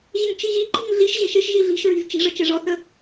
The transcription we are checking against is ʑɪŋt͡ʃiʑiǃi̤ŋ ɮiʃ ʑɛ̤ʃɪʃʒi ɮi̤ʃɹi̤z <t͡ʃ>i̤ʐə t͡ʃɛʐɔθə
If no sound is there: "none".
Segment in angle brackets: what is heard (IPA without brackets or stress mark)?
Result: t͡ʃ